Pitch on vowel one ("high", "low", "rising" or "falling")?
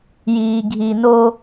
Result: low